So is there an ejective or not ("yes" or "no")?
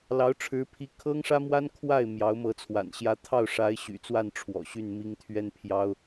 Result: no